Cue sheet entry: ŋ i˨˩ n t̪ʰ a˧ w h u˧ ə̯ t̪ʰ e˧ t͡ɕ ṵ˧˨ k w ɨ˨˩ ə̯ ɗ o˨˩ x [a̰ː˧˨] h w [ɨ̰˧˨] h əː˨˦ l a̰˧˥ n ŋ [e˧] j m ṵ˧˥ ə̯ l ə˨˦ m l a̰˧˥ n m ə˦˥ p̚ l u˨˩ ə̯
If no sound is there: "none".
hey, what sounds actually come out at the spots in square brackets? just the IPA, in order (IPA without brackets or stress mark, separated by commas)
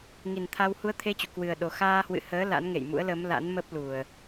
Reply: aː˧, ɨ̰˧˨, ḛ˧˨